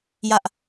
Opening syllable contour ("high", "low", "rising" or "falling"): high